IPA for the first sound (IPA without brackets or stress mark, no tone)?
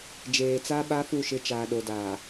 d͡ʒ